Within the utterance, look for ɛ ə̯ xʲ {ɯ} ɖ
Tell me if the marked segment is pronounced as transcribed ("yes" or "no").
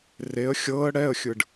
yes